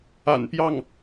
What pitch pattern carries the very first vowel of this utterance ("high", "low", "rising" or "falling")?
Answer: low